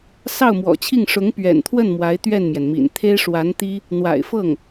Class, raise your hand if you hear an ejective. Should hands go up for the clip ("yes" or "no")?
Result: no